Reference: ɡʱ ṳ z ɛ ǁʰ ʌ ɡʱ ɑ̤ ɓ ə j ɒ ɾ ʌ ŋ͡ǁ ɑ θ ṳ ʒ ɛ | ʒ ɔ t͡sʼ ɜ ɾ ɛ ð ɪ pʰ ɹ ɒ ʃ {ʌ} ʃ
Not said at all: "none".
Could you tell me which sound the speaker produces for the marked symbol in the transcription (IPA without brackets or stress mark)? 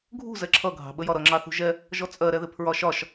ɒ